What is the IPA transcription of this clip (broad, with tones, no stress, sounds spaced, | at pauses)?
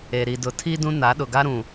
e˨ ɾ i˨ d ʊ˨ tʰ i˦ d ũ˦ n a˨˦ ɗ ʊ˨ ɡ a˦ ɾ ũ˨